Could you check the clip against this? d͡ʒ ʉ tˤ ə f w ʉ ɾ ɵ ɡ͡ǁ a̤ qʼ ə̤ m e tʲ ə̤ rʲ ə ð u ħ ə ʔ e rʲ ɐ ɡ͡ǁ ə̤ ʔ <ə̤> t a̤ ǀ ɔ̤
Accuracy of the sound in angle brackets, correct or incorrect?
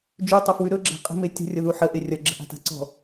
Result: incorrect